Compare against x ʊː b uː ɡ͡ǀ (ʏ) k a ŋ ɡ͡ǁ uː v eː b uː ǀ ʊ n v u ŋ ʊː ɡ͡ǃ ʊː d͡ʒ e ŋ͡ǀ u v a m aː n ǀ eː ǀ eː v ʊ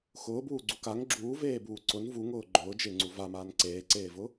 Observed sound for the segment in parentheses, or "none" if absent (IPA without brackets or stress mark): u